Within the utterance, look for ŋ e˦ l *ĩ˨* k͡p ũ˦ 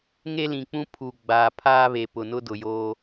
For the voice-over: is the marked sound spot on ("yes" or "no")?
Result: yes